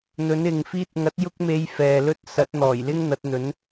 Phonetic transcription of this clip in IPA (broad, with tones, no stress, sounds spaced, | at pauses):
n̪ ɵ˨˧ n ɪ˨ ŋ f iː˧ t̚ ŋ ɐ˨˥ t̚ j ʊ˥ k̚ m e˧ j f ɛː˨ l ɵ˥ t̚ s ɐ˨˥ t̚ n̪ ɔː˨˩ j l ɪ˥ ŋ n̪ ɐ˨˥ t̚ n̪ ɵ˨˥ n